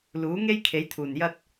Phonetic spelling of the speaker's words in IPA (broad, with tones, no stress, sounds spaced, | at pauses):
l uː˨˥ ŋ e˥ j kʰ e˨˥ j t̪ʰ uː˨˩ n j ɐ˥ t̚